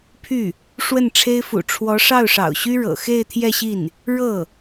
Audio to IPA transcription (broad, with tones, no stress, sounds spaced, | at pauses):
pʰ y˥˩ | ʂ w ə˥˩ n ʈ͡ʂʰ e˥ ɪ̯ f ṵ˨˩ ʈ͡ʂʰ w ɔ˧˥ ʂ ɑ˥˩ ʊ̯ ʂ ɑ̰˨˩ ʊ̯ ɕ y˥ ɻ ɤ̰˨˩ x e˥˧ ɪ̯ t̪ʰ j ɛ˥˧ ɕ i˥˩ n | ɻ ɤ˥˩